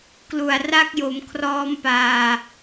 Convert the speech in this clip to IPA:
k l u˨˩ a̯ r a˦˥ k̚ j o˩˦ m kʰ r ɔː˧ m p aː˨˩

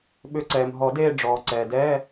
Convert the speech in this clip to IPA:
ɓ ʏ˨˩˦ ǀ ɛː˩ m ɦ ɔ˨˩˦ d eː˦˨ ɖ͡ʐ ɔː˩ ǀ ɛː˩ d ɛː˧˥˧

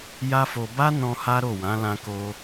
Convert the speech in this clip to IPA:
j a˦ f o˧ b a˦ n ɔ̃˧ h a˦ ɾ o˦˨ w ã˨˦ l ã˧ k o˧

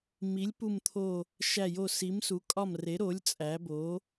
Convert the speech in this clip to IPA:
m i˩˥ lʲ p u˧˩ m t̪ʰ o˧˩ | ʃ æ˧˩ j o˧˩ s i˩˥ m s u˩˥ kʼ ɒ˧˩ m r e˩˥ ɾ o˩˥ lʲ t͡sʼ æ˩˥ b o˩˥

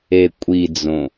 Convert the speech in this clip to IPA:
e kʷʼ i d͡z õ

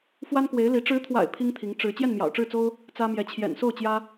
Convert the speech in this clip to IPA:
f w a˥ n k w e˧˥ ɪ̯ l i˧˥ ʈ͡ʂ ɻ̩˧˥ t̪ʰ w a̰˨˩ ɪ̯ pʰ i˥ ŋ t̪ʰ i˧˥ ŋ ʈ͡ʂ ɻ̩˧˥ t͡ɕ j ɛ˥˩ n m j ɑ̰˨˩ ʊ̯ ʈ͡ʂ ɻ̩˥˩ t͡s o˥ ʊ̯ | t͡s ä˥ m j ɛ˧˥ t͡ɕʰ j ɛ̰˨˩ n s o˥˩ ʊ̯ t͡ɕ j ä˥

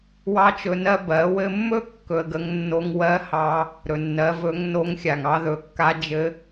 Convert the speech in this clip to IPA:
w ɑ˥ t͡ʃ ɵ˧ n ɜ˥ b ɜ˩˧ w ɘ˧ mː ɵ˥ kː ɵ˧ ə̯ ɡ ə˧˥ ŋ nː o˧ ŋ w ɜ˧˥ h ɑ˧ | ɾ ɵ˩ nː ɜ˩˧ v ɵ˧˥ ŋ n o˧˥ ŋ xʲ a˩ ŋ ɑ˥ ð ɵ˩˧ kː a˧˥ d͡ʒ ɘ˧˥

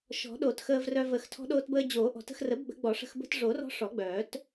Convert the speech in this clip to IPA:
ʃ ɔ̤˨˩˦ ɗ o˨˩˦ t x əː˧ v r œ˧ v ə˨˩˦ x tʰ ɔ̤˧ ɗ oː˧ t b əː˧ d͡ʑ oː˨˩˦ ʔ ɔ̤˨˩˦ t ə̤˧ x r ə˨˩˦ b ɡ͡b ə̤˨˩˦ ɡ͡b ɔ˨˩˦ ʂ ə̤˧ x b ə̤˧ t ʐ o˨˩˦ r ɔ̤˧ ʂ ɔ˨˩˦ ɡ͡b œː˨˩˦ t

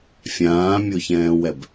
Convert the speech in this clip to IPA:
fʲ ãː mʲ o ç ɛ̃ː w ɛ b

